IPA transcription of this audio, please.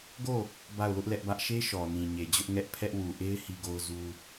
ɡ o˦˨ | b a˦˨ ʊ̯ l ʊ˦ ʔ l ɛ˦ ʔ b ä˦ ʔ ʃ e˦ ʃ ɔ˨ n ĩ˨ ɲ e˨ d͡ʑ ʊ˦ ʔ ŋ ɛ˦ ʔ pʰ ɛ˦ ʔ w u˨ ʔ e˦ ɪ̯ h i˦ ɡ o˦ ʊ̯ z u˦

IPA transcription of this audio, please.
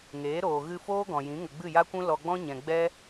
ŋ eː˨˦ ɾ oː˨ ɣ ɨ˧ f oː˦ ɡ ɔ̃˨ j ĩ˨˦ ŋ ə˨ ɡ͡b ɨ˦˨ j a˦ kʷ ũ˦ l ɔ˧ ɡ͡b ɔ̃˦ ɲ ɛ̃˨ ɡ͡b ɛ˦

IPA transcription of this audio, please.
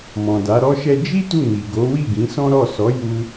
m ɔ̃˨ d a˨˦ ɾ ɔ˦ ʃ ɛ˦ d͡ʒ i˦ t u˦˨ n i˨ ɡ o˨˦ w i˦˨ ɡ ĩ˨˦ s ɔ̃˦ ɾ ɔ˦˨ s ɔ˨˦ j u˧

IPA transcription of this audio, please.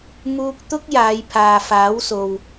m uː˧ k̚ t̪ ʊ˥ k̚ j aː˨˧ j pʰ aː˨ f aː˨˥ w s o˨ w

